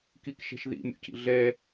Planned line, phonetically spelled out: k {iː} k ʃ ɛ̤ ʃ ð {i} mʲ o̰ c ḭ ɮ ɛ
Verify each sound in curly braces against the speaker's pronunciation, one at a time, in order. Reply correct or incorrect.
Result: incorrect, incorrect

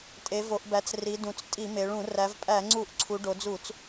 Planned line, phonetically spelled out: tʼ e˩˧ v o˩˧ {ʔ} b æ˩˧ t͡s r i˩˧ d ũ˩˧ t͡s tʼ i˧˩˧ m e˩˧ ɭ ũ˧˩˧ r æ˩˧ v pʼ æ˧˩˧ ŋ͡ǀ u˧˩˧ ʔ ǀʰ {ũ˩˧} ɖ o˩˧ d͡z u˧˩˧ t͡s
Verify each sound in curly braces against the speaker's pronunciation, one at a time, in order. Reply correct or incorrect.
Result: correct, incorrect

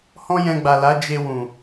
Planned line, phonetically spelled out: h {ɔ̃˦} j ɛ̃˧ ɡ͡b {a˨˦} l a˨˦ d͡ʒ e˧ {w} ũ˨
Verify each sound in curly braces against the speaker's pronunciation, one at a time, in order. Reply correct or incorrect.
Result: correct, incorrect, correct

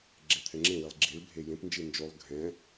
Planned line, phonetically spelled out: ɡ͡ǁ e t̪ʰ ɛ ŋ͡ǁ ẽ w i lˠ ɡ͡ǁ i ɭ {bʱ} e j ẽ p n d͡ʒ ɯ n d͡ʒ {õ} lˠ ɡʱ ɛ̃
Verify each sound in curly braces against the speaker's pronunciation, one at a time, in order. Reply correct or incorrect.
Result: correct, incorrect

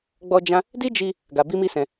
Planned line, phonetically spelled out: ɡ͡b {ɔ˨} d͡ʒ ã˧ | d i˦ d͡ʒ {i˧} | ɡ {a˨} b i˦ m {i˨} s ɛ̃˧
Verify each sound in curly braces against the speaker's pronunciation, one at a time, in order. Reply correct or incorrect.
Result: incorrect, correct, incorrect, incorrect

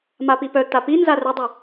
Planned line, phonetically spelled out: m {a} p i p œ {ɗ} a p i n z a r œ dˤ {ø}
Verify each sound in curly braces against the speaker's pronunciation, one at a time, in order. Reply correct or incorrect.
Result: correct, incorrect, correct

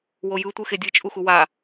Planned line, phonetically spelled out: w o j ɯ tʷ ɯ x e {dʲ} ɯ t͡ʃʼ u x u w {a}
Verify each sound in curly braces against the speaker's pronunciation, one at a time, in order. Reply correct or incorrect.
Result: correct, correct

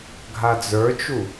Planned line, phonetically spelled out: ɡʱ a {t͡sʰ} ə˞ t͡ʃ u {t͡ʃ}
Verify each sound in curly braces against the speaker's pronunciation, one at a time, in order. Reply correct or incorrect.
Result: incorrect, incorrect

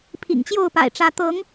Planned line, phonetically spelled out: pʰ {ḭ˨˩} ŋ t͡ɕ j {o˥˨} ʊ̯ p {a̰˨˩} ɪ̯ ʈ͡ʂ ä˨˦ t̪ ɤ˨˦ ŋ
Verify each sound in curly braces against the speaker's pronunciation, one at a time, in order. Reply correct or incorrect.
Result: correct, correct, correct

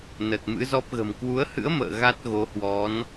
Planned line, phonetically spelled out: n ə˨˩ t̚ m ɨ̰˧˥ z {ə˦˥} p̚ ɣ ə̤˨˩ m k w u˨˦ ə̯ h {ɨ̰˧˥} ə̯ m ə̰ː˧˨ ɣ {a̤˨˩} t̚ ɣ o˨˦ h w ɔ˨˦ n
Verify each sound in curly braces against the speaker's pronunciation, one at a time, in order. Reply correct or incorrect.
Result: incorrect, correct, incorrect

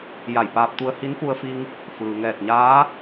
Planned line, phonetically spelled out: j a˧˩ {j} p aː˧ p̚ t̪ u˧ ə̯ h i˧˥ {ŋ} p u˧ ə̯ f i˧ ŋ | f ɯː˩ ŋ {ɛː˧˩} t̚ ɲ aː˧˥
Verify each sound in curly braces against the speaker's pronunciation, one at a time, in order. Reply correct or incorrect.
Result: correct, incorrect, correct

